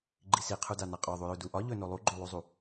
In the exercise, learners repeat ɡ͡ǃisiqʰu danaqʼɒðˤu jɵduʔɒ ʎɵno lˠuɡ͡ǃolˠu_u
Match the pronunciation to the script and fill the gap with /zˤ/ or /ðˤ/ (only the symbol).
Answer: zˤ